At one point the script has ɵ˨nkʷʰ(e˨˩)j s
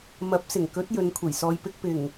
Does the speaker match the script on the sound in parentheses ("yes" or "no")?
yes